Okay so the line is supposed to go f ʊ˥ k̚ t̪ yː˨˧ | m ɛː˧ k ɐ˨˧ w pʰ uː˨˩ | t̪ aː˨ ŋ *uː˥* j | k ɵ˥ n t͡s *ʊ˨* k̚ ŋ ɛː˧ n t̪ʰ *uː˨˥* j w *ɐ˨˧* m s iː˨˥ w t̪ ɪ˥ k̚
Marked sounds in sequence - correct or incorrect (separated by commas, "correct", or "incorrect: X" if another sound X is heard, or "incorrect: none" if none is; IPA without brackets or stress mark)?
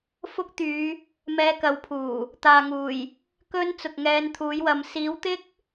incorrect: uː˨˩, correct, correct, correct